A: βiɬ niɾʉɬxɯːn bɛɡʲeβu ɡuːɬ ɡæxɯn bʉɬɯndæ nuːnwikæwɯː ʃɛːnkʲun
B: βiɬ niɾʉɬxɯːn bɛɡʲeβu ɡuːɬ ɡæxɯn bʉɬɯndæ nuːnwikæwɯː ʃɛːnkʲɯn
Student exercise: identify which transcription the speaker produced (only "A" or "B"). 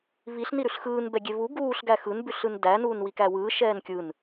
B